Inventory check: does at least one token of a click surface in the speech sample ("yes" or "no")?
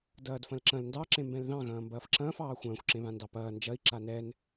yes